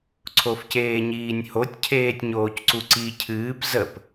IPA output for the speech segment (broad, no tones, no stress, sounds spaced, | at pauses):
ǀʰ o f c eː ɲ iː nʲ h o tʲ cʰ eː tʲ ɲ oː c ǀ u ǀ i cʰ ɨː p z ə p